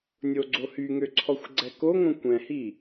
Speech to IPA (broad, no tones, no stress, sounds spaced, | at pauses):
nʲ o ɡ͡ǀ o h y ŋ ø ǀʰ ɔ xʷ ɡ͡ǀ ɛ k o ŋ õ kʷ ɛ̃ h i